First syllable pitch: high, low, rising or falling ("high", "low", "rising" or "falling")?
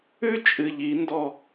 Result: high